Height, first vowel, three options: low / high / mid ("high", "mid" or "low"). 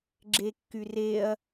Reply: mid